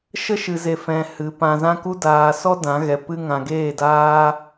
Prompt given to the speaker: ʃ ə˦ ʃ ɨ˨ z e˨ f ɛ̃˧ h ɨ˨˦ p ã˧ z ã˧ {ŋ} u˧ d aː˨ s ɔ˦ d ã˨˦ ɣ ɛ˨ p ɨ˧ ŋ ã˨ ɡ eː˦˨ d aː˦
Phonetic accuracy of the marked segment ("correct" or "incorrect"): incorrect